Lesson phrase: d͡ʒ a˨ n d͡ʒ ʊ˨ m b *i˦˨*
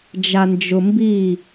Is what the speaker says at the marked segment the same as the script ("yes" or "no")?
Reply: yes